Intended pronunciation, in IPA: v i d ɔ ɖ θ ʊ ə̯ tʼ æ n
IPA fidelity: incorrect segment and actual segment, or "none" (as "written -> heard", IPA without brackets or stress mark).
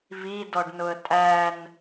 θ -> n